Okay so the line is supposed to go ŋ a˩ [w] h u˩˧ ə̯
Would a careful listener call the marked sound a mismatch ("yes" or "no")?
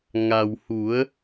no